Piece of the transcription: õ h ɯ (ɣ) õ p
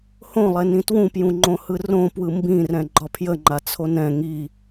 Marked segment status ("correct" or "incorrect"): incorrect